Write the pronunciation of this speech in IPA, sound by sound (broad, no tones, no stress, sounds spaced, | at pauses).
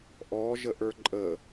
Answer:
ʔ ɔ ʒ ə ʔ ə˞ ǃʼ ə